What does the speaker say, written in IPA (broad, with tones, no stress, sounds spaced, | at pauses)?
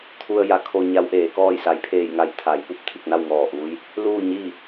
t̪ʰ u˧ ə̯ j a˩˧ kʰ o˧ ɲ a˧˥ w ʔ eː˩˧ k ɔː˥˨ j s a˩˧ j pʰ eː˧˩ j ŋ a˧˩ j t̪ʰ a˩˧ j p u˧˥ p̚ t̪ʰ i˧˩ k̚ n a˥˨ w ŋ ɔː˧˩ ʔ uː˧˥ j | l uː˥˨ ɲ iː˥˨